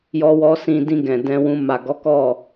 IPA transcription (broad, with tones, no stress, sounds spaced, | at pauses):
j ɔ˦ w ɔ˦ s ĩ˧ d ĩ˧ ɡ ɛ̃˨ d ɛ̃˧ w ũ˧ m a˨ ɡ ɔ˨˦ k ɔ˦˨